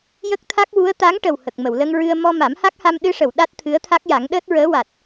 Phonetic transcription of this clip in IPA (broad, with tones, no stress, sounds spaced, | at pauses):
j ə˦˥ k̚ t̪ʰ a˦˥ k̚ w u˧˥ ə̯ t̪ a˧˥ ŋ ʈ ə˨˩ w h ə˨˩ k̚ m ə˨˩˨ w l ə˧ ŋ ɹ ɨ˧ ə̯ m ɔ˧ m a˨˩˦ m h a˦˥ k̚ h a˧ m ɗ ɨ˧ ʂ ə˨˩˨ w ɗ a˦˥ t̚ t̪ʰ ɨ˧˥ ə̯ t̪ʰ a˦˥ k̚ j a˨˩˦ ŋ ɗ əː˦˥ t̚ ɹ əː˧˥ w a˨˩ t̚